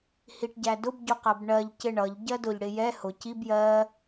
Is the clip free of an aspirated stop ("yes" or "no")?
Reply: yes